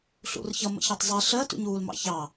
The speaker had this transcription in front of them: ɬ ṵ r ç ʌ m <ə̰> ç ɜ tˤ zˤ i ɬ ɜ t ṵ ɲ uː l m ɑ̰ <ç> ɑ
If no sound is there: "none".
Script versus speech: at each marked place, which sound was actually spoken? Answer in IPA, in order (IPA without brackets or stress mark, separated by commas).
ə̰, ç